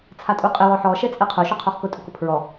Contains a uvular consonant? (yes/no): yes